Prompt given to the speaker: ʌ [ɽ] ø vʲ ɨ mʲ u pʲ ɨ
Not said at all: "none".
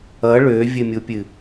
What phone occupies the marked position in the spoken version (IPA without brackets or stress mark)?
ɭ